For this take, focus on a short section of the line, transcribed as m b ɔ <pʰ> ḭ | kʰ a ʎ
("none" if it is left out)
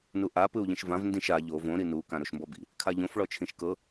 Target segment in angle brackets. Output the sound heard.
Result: b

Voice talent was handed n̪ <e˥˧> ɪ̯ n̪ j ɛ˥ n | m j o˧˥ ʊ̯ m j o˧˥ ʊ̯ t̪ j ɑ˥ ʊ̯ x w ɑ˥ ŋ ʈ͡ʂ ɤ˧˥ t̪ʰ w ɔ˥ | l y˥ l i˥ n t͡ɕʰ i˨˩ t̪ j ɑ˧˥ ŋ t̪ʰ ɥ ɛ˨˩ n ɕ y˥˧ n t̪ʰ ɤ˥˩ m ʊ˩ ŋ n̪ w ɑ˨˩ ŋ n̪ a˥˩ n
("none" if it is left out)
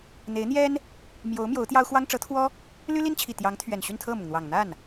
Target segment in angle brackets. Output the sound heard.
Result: e˧˥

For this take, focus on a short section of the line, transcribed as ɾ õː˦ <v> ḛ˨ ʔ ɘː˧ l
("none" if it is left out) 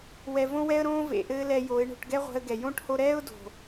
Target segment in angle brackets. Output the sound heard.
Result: v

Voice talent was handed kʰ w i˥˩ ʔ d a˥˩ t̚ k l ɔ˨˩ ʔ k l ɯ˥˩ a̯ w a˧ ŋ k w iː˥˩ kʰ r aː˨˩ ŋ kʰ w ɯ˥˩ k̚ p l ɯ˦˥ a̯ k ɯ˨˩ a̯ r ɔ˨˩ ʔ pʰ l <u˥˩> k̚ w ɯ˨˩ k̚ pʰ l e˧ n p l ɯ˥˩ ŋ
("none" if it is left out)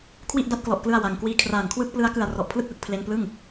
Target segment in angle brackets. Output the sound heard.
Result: ɯ˥˩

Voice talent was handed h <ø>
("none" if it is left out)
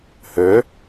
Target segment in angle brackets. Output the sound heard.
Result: ø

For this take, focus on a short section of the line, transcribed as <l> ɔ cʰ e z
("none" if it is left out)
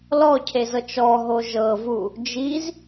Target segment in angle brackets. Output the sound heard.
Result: l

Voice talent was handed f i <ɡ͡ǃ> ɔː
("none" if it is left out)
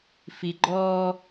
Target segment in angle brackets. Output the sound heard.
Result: ɡ͡ǃ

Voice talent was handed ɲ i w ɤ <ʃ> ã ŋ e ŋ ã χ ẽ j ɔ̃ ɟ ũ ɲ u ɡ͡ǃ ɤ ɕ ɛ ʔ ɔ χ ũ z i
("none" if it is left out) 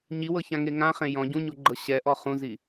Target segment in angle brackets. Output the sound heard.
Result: ç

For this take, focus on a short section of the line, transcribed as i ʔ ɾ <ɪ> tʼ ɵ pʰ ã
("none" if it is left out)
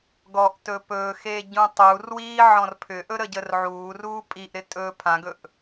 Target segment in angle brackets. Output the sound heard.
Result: ɪ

